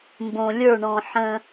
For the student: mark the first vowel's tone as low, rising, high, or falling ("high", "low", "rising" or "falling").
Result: low